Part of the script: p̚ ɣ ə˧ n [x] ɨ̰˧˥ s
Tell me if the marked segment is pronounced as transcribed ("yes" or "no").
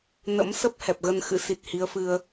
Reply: yes